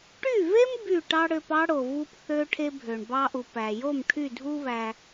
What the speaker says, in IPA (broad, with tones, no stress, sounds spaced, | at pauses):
ʈ y˥˩ v e˥ m b y˥˩ ʈ ɑ˥ ɽ ø˧ p ɑ˥ ɽ o˩ v u˧ p θ ø˥ ʈʰ e˥ bʱ ø˩ ɳ b ɑ˧ ʔ u˩ p æ˩ j o˥˩ m ʈʰ y˥˩ dʱ u˥ β æ˧